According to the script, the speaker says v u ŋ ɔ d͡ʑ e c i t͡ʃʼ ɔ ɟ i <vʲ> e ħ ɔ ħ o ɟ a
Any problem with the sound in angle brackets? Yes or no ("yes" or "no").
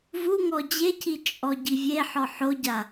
no